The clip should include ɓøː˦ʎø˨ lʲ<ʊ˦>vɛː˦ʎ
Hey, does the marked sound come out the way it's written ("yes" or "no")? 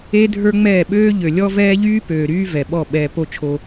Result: no